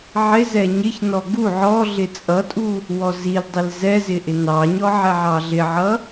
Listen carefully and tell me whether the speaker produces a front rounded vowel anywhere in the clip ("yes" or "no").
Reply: no